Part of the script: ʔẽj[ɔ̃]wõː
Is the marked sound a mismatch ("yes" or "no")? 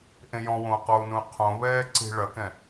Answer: no